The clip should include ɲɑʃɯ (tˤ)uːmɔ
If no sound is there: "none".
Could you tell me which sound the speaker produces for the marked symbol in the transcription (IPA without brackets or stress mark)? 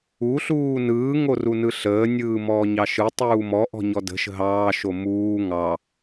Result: tˤ